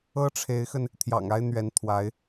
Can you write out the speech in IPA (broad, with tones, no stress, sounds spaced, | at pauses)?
ɤ˥ ʈ͡ʂʰ e˧˥ ɪ̯ x ə˧ n | t̪ʰ j ɑ̰˨˩ ŋ a˥ ɪ̯ n̪ ɥ ɛ˧˥ n t̪ʰ w a˧˥ ɪ̯